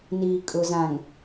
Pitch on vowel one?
low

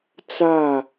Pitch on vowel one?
falling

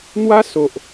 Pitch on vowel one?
high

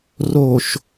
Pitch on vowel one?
low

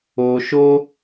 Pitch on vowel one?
low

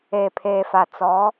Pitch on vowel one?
low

